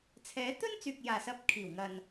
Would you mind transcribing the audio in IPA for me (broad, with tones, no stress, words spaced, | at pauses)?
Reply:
t͡sʰɛː˨˧ t̪ɵ˥nt͡syː˨k̚ jaː˨sɐ˧p̚kʰiː˨˩w ŋɐ˨n